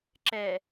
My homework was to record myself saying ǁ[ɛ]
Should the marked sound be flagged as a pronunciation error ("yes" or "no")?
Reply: no